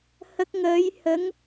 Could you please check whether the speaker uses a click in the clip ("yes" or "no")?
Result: no